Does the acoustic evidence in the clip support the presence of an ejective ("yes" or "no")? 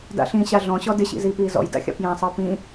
no